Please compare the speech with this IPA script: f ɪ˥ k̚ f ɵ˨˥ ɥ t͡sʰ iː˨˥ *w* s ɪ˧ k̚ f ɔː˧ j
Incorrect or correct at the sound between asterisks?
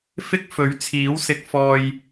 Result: correct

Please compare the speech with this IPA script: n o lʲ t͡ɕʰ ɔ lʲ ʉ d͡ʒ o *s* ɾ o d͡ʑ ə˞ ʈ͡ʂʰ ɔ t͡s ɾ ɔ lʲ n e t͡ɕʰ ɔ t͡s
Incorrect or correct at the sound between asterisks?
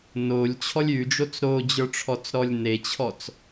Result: incorrect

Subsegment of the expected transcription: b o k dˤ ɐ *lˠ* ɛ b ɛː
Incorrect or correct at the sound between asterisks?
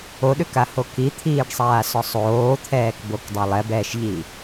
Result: correct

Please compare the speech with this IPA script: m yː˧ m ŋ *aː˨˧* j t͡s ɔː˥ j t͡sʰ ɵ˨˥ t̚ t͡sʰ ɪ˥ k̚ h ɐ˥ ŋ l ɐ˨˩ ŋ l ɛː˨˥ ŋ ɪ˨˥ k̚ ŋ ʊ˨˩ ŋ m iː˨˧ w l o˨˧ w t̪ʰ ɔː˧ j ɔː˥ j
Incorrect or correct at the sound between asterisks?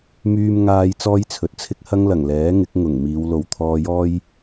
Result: incorrect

